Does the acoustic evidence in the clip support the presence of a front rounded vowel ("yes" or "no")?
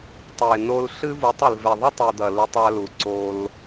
no